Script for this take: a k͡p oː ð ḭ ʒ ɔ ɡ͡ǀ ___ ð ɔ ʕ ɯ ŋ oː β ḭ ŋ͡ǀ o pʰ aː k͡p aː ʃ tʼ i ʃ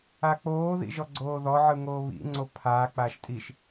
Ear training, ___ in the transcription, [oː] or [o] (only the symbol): oː